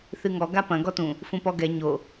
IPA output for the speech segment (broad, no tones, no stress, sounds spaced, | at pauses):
θ ɨ ŋ ɔ ɡ a p ɐ̃ ɡ ɔ t ũ | f ũ p ɔ ɡ ɛ ɲ o